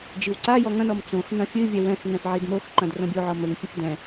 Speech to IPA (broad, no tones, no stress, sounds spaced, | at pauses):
d͡ʒ i w ǀ a j ɔ ŋ ɐ̃ n ɔ m t͡s õ x n ɐ̃ fʲ ɨ vʲ ɛ w ɛ̃ x ŋ ɛ̃ f ʕ i d m o x ǃ ɐ̃ d r õ bʲ o ʕ ɔ m ɘ ŋ fʲ ɨ f d ɛ̃